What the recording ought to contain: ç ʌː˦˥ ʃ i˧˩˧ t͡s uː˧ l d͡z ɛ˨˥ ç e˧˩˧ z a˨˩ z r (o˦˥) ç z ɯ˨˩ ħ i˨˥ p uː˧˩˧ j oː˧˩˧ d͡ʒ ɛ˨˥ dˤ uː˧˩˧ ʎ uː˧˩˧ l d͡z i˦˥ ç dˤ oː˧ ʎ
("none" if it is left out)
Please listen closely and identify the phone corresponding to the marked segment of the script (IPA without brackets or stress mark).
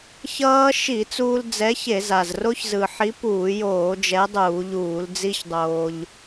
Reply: o˦˥